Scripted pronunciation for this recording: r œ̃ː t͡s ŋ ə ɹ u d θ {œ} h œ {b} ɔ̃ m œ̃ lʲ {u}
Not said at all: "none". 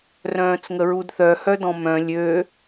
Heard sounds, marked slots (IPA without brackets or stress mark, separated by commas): œ, d, ø